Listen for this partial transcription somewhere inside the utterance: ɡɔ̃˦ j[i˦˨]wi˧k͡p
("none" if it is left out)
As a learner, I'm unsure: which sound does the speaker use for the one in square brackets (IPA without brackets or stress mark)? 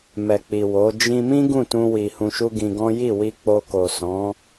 i˦˨